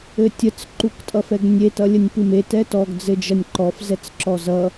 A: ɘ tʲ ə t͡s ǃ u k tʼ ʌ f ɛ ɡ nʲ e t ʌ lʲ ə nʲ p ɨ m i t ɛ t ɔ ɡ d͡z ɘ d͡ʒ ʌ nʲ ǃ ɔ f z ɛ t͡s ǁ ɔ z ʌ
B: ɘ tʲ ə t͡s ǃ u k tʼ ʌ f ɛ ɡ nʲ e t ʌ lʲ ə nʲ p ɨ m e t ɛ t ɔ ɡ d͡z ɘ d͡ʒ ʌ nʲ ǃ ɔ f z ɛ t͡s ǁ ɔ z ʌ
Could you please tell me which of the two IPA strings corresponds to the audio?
B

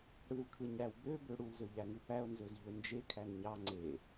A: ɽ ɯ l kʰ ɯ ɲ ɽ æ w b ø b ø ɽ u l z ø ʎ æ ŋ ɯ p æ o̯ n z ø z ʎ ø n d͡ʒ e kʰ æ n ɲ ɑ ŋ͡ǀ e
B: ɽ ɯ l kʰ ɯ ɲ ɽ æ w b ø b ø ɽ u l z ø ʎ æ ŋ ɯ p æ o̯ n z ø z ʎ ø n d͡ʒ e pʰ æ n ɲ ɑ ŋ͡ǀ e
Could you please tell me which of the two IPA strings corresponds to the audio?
A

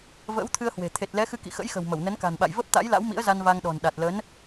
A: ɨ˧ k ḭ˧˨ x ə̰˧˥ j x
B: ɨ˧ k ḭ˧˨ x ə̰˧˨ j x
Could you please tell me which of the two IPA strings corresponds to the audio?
A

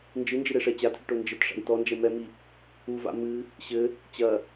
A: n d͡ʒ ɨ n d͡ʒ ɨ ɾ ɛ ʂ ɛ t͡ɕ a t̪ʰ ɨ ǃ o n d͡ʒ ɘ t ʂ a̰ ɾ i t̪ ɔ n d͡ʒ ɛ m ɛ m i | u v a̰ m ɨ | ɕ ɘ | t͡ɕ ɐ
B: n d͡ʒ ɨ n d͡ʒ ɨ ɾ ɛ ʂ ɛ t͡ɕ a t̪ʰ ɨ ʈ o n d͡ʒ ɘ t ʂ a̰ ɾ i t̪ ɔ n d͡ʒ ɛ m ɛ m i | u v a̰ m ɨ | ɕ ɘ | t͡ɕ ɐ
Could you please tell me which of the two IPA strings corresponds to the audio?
B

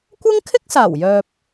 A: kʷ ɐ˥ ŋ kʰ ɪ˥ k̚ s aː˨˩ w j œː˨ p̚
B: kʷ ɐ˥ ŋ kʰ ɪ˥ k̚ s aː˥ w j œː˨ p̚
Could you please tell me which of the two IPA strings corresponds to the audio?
A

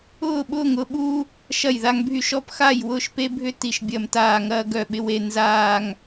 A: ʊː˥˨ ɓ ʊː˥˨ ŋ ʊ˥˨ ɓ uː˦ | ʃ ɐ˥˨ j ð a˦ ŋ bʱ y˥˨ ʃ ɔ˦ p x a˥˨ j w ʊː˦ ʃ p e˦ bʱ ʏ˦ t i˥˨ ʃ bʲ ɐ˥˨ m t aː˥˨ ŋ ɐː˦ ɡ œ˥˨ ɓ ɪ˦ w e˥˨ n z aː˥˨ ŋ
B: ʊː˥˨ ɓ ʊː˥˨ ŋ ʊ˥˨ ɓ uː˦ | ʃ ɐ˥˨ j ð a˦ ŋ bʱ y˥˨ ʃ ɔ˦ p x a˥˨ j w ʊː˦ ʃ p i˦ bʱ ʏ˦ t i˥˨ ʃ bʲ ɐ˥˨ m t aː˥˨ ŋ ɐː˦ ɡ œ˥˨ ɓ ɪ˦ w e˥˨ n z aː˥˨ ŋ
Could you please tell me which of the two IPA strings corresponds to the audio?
A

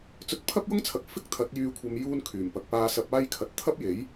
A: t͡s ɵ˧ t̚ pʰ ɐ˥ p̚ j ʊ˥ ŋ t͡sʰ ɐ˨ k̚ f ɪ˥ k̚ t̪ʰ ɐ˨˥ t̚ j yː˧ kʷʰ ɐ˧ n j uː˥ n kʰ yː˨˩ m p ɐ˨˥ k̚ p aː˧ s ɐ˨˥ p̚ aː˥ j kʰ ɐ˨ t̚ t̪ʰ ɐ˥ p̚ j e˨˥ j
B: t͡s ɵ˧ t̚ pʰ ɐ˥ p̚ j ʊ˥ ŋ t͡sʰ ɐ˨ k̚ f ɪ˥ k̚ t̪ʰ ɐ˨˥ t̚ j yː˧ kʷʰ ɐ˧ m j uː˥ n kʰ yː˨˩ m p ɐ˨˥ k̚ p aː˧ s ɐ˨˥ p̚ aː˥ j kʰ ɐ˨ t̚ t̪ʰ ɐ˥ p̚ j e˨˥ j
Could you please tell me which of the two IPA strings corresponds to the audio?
B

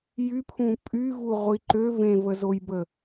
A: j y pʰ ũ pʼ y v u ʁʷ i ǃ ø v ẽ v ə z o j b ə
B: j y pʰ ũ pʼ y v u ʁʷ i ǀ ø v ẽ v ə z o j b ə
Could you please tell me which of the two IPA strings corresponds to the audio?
A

